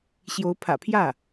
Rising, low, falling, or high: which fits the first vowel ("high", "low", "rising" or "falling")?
rising